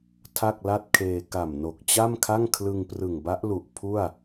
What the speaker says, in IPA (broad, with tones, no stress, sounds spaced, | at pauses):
tʰ a˥˩ k̚ l a˥˩ t̚ kʰ eː˧ k a˨˩ m n o˨˩ k̚ t͡ɕ a˥˩ m kʰ a˥˩ ŋ kʰ l ɯ˧ ŋ p r ɯ˨˩ ŋ b a˦˥ ʔ l u˨˩ ʔ pʰ u˥˩ a̯